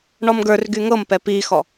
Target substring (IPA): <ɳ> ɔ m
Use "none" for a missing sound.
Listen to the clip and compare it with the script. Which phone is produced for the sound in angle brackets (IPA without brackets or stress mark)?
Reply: ɳ